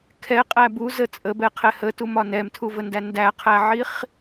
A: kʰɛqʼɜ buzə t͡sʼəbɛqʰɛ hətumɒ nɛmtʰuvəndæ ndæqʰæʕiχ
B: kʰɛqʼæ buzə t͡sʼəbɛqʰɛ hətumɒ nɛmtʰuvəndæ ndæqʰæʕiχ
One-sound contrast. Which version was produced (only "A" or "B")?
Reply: B